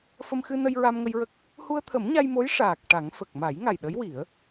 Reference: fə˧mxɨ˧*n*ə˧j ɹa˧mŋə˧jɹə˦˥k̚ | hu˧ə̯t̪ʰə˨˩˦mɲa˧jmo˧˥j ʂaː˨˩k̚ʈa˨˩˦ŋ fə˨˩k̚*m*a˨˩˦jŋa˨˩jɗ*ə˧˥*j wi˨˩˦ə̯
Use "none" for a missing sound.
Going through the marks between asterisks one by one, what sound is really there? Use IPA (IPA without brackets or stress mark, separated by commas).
n, m, ə˧˥